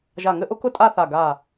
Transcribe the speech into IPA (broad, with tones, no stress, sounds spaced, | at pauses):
ʒ a˧˩ ŋ ɘ˥˧ ʔ ʊ˥ k ʊ˥ tʼ a˥˧ θ a˧˩ ɡ a˧˩